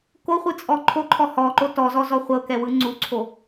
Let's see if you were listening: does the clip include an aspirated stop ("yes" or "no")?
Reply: yes